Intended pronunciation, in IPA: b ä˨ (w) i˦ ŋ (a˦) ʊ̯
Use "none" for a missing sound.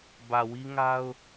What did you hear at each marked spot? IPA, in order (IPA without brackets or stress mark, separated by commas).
w, a˦